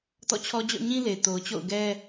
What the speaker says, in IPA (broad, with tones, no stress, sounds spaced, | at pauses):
t ɔ̰˦˨ t͡ɕʰ ɔ˦ d͡ʑ ɔ̰˦˨ ɲ ĩ˦ l e˨ t o˨ ʊ̯ t͡ɕ o̰˦˨ ʊ̯ ɡ ɛ˦